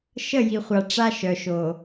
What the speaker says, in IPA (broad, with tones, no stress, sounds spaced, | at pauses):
ʃ ə˦˨ j i˨ χʷ a˨ ʈ͡ʂ a˦ ʃ œ˨ ʃ o˨